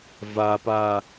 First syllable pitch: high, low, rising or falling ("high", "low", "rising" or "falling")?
low